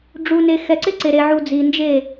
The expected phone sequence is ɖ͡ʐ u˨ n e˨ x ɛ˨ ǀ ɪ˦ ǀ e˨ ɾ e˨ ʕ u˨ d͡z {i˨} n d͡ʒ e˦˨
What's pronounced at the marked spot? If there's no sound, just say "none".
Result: i˨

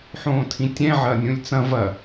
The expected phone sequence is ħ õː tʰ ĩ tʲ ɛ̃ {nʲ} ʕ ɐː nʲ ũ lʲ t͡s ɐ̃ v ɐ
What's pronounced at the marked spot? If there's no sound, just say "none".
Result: none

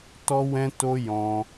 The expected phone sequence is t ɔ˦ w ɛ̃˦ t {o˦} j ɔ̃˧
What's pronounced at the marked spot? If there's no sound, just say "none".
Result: o˦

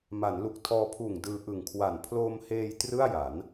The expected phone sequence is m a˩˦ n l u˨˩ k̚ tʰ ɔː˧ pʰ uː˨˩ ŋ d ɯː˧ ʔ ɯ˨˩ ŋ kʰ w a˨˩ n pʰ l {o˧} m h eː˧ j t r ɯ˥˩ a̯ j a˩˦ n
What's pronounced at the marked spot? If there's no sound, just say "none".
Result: oː˧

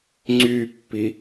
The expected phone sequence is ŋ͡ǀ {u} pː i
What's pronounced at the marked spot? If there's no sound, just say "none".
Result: y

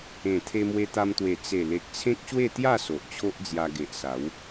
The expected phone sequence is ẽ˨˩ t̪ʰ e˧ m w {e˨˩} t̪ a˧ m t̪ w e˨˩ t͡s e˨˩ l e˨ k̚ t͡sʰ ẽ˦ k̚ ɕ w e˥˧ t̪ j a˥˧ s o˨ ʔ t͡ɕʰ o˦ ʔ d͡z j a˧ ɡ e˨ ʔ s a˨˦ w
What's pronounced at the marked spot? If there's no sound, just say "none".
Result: e˧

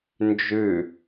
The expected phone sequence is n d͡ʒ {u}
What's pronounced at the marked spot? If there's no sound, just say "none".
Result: ʉ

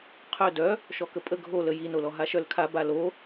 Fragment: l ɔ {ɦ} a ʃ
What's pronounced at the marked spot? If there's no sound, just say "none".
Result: ɦ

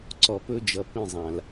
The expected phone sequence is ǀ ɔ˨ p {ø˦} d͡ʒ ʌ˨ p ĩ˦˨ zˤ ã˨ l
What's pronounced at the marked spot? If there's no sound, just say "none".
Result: ɵ˦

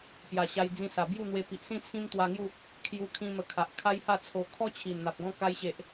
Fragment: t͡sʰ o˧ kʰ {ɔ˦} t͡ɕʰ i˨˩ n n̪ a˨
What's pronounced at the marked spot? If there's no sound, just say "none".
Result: ɔ˦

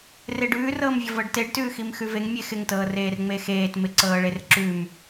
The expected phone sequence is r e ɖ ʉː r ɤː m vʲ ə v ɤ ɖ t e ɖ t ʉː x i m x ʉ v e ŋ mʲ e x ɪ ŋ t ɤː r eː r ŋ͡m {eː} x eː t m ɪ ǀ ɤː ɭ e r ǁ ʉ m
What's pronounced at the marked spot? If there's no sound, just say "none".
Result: e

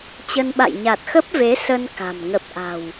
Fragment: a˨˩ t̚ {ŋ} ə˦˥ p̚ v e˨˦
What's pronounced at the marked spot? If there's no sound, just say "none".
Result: x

